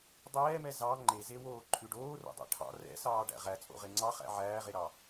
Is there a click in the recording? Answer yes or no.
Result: yes